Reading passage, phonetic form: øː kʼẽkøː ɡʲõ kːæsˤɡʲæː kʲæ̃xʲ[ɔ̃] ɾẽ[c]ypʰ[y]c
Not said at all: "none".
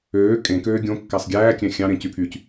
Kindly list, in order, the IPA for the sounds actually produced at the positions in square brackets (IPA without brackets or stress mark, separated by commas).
ɑ̃, c, y